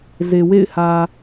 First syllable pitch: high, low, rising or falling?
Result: low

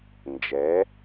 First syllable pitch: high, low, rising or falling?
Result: rising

